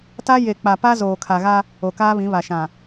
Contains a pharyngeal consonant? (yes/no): no